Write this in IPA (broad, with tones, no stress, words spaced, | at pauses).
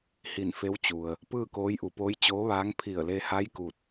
hi˧˩nfe˧˥w t͡ɕu˩ə̯ | pɯː˥˨koː˧˥jʔu˩poː˧˥j t͡ɕoː˧˥ʋaː˧˥ŋ pʰi˧˩ə̯le˧ha˧˥j ku˥˨t̚